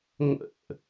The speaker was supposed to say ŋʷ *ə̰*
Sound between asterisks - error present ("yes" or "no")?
no